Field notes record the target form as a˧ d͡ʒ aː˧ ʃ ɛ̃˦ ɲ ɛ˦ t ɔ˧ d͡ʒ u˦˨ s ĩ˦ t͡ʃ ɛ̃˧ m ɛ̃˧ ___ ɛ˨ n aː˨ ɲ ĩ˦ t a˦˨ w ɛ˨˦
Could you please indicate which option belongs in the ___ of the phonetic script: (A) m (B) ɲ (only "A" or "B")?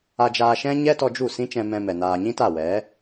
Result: A